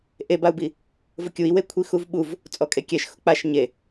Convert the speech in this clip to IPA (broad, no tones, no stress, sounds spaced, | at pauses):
ʔ e b a u̯ b i | v ʊ kʲ u i̯ w e kʷʰ i x u v ɓ u v | t͡sʼ ɔ kʼ e kʲ ɛ ʃ x ʊ k͡p a ʃ ɲ e